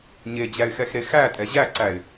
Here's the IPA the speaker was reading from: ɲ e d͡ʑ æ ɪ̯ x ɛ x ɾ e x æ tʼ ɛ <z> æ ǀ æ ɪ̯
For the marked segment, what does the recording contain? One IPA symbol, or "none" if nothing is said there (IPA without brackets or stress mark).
ʑ